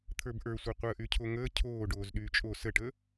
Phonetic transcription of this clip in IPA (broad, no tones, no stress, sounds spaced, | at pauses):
t̪ʰ ə˞ b ʔ ə˞ sʷ e qʷ əː ʔ y cʰ o ŋ əː cʰ oː ɖ oː z ɗ yː t͡ʃʼ o s ə ʈ ə